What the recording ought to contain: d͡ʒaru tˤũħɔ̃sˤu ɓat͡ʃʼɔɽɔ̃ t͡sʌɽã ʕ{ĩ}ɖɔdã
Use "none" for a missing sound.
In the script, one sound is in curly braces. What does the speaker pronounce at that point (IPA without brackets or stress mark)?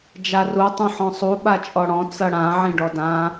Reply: ĩ